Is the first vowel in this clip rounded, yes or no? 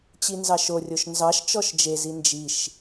no